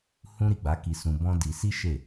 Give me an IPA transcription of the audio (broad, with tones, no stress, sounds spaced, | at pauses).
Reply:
h ũ˦ ɾ i˦˨ ɡ͡b a˨˦ k i˧ s ũ˧ b ɔ̃˦ d i˧ s i˦ ʃ e˦˨